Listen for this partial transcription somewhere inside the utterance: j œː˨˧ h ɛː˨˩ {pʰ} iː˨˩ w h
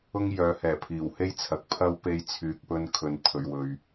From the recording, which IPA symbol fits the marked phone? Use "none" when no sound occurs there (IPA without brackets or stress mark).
pʰ